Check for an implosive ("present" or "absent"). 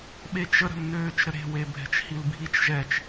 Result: present